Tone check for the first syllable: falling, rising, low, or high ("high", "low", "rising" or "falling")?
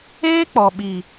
high